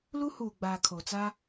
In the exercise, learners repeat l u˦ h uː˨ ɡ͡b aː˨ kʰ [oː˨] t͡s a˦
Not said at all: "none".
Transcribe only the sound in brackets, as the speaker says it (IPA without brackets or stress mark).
o˨